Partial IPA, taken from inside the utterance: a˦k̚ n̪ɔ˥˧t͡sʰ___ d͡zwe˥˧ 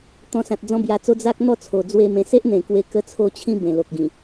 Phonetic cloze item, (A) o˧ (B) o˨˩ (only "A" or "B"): B